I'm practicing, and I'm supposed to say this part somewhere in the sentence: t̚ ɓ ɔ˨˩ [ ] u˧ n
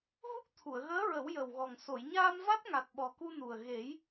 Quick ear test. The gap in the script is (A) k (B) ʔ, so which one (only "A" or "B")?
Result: A